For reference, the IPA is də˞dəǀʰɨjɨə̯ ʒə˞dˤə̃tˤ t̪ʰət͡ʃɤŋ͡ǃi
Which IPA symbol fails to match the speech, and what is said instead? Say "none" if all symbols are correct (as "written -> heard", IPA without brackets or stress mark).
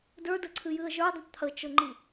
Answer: none